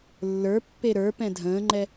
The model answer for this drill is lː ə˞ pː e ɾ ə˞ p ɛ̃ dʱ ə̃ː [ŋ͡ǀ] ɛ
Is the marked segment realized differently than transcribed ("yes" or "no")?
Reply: yes